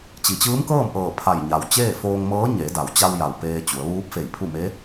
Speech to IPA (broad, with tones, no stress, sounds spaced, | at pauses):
t͡ɕ i˩ t͡ɕ ɯː˧˥ m k ɤː˥˨ m ʔ ɤː˧˩ pʰ a˧˩ j ɲ a˩ w t͡ɕ eː˥˨ f oː˧ ŋ m ɤː˧˥ ɲ e˩˧ d a˩˧ w t͡ɕ a˧ w j a˩ w p eː˧ t͡ɕ u˩˧ ə̯ ʋ uː˧˥ p̚ f e˧˩ j pʰ u˥˨ m e˧˥